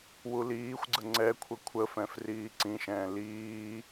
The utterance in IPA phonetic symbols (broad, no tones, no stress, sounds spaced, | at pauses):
w u l iː xʷ ɡ͡ǀ ə ŋ͡ǀ ɛ kʷʰ ə kʷʰ ə f ɛ̃ f r iː ǀ ĩ ʃ ɛ̃ː l iː